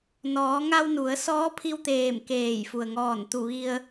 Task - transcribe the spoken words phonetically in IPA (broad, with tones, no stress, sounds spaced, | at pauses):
n ɔː˩˧ ŋ a˧ w n u˩˧ ə̯ s ɔː˧˥ pʰ i˧ w t̪ eː˧˩ m k eː˧˩ j f u˩ ə̯ ŋ ɔː˧˩ n t̪ u˧˩ ʋ i˧ ə̯